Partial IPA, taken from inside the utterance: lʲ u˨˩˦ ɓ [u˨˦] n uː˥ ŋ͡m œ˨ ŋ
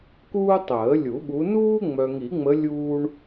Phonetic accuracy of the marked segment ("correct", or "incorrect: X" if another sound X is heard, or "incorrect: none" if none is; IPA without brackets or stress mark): correct